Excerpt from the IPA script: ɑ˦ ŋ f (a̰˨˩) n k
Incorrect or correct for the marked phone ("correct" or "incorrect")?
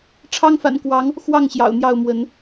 correct